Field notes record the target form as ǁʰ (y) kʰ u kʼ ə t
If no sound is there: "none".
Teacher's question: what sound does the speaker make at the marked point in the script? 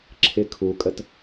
ɪ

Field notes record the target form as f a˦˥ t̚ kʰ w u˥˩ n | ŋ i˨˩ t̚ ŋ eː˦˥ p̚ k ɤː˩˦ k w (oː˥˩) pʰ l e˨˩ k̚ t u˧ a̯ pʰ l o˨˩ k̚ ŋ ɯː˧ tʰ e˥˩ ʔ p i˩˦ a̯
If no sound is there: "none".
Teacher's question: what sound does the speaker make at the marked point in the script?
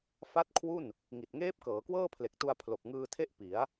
ɤː˥˩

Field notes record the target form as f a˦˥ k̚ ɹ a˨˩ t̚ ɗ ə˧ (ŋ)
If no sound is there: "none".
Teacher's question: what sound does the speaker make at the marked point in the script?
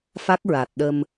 m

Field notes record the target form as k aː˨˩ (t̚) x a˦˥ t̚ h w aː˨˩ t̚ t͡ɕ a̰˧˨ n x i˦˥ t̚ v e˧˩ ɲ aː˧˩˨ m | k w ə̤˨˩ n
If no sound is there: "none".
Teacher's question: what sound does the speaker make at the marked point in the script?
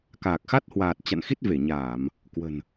k̚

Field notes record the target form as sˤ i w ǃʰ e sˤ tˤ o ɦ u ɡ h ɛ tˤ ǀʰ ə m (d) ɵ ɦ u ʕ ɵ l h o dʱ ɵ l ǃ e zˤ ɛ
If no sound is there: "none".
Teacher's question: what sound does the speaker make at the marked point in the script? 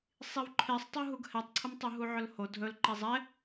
tˤ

